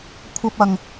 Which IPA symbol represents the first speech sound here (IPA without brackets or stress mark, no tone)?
kʷʰ